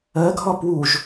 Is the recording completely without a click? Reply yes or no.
yes